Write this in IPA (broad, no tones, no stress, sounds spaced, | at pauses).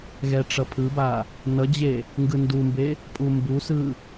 ɣ ɛ ʈ͡ʂ ʌ pʰ ɯ b a | n ʌ d͡ʑ e | ŋ ɡ ɯ n d u m b e | pʼ u m b u s ɯ